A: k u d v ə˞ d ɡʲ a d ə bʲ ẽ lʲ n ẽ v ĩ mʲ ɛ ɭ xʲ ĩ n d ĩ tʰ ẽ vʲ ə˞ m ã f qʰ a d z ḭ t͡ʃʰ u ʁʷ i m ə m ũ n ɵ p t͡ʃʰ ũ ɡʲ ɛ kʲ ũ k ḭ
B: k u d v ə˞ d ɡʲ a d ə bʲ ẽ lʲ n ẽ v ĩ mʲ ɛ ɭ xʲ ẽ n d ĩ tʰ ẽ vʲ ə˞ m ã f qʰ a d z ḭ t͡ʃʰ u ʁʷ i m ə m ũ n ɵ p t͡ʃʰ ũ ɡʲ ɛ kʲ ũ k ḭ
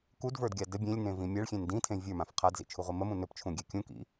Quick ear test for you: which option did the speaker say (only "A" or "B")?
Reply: B